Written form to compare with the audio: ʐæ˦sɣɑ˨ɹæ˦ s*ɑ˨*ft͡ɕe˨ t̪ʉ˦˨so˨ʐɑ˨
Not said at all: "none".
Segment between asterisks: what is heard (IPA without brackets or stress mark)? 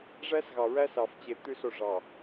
ɑ˨